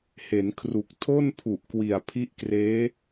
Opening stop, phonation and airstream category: aspirated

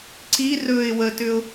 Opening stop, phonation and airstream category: click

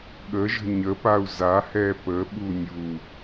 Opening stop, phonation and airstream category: implosive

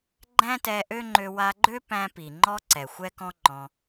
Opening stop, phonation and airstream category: click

